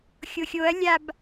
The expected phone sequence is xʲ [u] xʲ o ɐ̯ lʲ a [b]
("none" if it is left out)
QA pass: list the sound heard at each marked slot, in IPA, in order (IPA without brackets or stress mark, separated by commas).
o, b